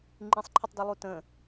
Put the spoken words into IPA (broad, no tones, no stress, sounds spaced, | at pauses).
ŋ͡ǃ ĩ sˤ ǃʰ ɘ tˤ d ɨ lˠ u t ə̃